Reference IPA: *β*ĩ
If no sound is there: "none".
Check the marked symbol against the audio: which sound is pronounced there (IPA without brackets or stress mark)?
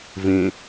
v